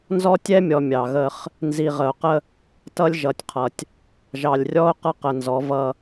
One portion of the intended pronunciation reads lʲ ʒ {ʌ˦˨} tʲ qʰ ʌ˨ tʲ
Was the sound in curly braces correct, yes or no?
no